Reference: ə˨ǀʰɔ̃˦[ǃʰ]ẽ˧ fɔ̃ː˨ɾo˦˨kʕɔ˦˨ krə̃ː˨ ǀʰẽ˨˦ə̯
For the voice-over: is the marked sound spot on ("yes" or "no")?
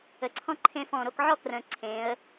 yes